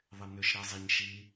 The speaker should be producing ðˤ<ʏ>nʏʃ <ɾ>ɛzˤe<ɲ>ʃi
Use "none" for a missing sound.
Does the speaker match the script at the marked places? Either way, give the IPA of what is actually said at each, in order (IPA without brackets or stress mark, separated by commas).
ɪ, ɾ, ɲ